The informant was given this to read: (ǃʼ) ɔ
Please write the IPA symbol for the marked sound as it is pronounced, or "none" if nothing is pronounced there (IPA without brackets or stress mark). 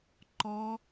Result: ǃ